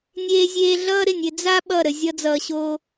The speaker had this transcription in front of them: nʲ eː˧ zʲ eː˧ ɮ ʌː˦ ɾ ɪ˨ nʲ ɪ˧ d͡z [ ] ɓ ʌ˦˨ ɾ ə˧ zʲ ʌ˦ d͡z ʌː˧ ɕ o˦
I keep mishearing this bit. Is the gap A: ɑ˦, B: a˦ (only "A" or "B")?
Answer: B